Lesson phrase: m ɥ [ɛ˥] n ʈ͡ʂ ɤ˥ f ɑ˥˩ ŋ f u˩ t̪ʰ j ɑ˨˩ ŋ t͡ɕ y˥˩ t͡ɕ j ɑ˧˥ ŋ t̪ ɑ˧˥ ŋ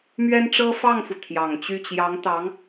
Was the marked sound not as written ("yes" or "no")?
no